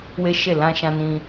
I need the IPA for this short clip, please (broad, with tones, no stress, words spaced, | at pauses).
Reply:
we˦ʃe˦˨ lã˧ ʃã˧nĩ˧